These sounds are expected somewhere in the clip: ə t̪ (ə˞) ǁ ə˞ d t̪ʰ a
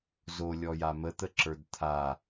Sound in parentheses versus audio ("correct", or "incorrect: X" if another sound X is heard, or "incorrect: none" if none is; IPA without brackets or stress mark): incorrect: ə